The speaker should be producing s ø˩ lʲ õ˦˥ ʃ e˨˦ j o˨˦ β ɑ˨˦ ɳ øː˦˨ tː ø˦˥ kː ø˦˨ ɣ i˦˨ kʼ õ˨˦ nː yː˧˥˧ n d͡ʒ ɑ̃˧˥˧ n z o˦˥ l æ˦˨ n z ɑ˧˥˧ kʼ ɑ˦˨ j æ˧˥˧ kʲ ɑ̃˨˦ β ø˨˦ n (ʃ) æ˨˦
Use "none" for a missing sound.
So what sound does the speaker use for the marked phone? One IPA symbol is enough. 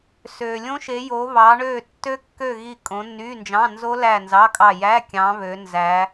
z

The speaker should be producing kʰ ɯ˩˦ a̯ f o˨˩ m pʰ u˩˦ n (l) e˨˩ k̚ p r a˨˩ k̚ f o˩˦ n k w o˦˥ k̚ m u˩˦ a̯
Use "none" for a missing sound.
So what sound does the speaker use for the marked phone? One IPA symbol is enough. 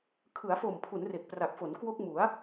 r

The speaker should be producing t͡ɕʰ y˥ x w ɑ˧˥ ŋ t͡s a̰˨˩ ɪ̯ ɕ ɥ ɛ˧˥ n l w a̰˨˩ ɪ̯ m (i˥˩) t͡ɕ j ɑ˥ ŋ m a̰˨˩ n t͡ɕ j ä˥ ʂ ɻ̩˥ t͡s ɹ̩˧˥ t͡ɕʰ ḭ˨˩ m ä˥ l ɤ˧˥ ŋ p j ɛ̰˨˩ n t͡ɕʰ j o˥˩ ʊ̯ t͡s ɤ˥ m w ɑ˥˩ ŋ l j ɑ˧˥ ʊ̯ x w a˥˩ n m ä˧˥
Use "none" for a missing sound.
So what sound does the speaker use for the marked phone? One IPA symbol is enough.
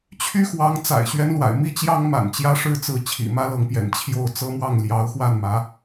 i˥˩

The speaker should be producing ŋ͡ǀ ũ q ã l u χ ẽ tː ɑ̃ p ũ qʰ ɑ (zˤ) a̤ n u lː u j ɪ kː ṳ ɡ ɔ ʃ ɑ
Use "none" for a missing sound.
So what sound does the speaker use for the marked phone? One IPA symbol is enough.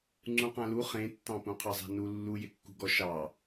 zˤ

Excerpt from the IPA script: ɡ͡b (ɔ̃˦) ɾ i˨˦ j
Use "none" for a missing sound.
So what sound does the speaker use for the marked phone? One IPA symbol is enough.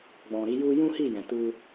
ɔ̃˨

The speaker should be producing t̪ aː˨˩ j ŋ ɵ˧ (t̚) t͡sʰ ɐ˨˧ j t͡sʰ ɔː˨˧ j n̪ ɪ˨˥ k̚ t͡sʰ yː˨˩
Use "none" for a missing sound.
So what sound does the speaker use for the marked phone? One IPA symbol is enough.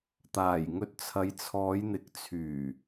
t̚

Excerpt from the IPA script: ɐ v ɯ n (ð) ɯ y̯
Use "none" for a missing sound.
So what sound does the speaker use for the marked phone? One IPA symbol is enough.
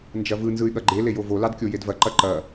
z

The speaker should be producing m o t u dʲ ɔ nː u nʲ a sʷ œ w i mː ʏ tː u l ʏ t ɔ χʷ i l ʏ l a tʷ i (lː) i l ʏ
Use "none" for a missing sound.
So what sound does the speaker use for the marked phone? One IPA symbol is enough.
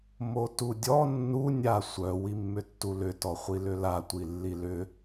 lː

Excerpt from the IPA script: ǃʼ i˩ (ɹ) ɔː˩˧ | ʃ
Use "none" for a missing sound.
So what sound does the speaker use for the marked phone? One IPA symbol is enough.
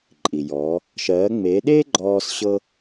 j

